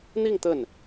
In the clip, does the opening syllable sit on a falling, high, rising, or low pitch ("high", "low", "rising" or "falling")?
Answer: falling